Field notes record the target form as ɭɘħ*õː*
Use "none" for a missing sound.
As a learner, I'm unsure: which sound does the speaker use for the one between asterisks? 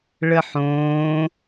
õː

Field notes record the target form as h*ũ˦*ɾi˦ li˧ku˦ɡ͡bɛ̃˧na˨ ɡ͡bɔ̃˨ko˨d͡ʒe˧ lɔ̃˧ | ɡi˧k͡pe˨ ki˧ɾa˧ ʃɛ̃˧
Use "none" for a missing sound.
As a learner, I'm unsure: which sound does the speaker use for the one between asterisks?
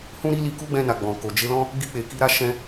ũ˦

